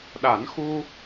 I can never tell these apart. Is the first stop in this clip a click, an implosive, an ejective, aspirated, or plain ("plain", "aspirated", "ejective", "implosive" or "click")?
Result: implosive